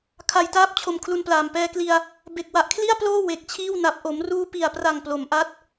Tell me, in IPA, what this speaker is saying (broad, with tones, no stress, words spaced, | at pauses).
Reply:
kʰa˧jtaː˥˩p̚t͡ɕʰo˧m kʰlu˧nplaː˨˩m pɛː˧kli˧a̯ | be˨˩k̚wa˨˩ʔkʰli˥˩a̯ploː˥˩ we˨˩k̚t͡ɕʰiː˥˩wna˨˩p̚ ʔo˩˦mruː˦˥pi˨˩a̯pra˨˩ŋ plo˩˦m ʔa˦˥t̚